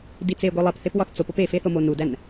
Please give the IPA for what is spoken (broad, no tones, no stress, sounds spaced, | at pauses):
d i t͡s e ɡʷ i lˠ e p θ e p w ɒ θ t͡s o p o p e f e θ o m o n u d æ n